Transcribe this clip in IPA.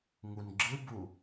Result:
ŋ u n ɡ͡ǁ ɯ b u

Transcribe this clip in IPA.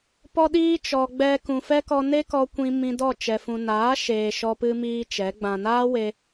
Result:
p ɔ˦ ɗ iː˦ t͡ʃ ɔ˨ ɡ͡b ɛ˧ k ũ˨ f ɛ˦ k ɔ˧ n e˦ k ɔ˧ kʷ ĩ˧ m ĩ˧ d ɔ˦˨ t͡ʃ ɛ˨ f ũ˨ n aː˨˦ ʃ eː˧ ʃ ɔ˦ p ɨ˦ m iː˦ t͡ʃ ɛ˨˦ ɡ͡b ã˧ n aː˦ w e˧

